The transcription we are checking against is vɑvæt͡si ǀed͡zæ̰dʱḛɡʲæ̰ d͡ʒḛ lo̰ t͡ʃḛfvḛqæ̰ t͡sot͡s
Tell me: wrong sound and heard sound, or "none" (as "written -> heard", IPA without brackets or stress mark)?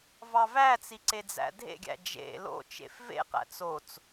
none